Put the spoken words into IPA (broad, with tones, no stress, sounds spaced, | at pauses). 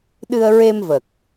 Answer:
ɗ ɨ˧ ə̯ ɹ e˧ m v ə˨˩ k̚